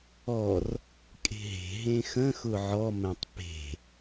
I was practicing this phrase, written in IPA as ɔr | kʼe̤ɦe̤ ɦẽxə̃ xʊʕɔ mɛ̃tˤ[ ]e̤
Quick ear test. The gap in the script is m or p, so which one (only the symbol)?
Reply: p